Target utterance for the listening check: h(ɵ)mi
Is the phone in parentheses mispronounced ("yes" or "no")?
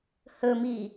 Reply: no